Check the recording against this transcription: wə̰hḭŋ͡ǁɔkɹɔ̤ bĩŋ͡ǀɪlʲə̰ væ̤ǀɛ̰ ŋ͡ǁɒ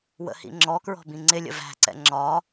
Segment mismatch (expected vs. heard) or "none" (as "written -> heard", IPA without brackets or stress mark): none